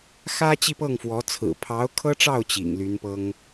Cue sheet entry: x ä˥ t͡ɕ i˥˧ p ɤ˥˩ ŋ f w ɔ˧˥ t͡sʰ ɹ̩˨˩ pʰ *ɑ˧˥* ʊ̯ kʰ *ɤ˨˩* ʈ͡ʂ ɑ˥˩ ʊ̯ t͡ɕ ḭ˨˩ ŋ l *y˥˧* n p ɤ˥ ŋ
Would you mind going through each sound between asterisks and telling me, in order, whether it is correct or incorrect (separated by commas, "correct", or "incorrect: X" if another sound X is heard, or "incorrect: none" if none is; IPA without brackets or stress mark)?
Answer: correct, incorrect: ɤ˥, incorrect: y˧˥